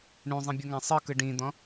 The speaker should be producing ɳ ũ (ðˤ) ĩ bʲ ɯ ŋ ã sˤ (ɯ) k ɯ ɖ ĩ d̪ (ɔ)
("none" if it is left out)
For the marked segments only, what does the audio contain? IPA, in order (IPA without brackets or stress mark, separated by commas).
zˤ, ɯ, ɔ̃